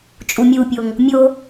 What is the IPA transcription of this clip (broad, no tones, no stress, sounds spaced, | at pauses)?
t͡ʃʼ u mʲ u pʲ o ŋ | mʲ o